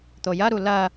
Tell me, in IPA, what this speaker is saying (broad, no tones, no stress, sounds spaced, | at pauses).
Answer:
t̪ o j ɐ ɾ u l ɐ